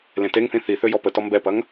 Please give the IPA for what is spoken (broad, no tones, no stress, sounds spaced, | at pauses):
l ẽ t e ŋ θ ĩ θ i θ ø j ɔ p ə t ɔ m b ɛ p ɐ ŋ